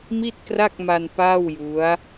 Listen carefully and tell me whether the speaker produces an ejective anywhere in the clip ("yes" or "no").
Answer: no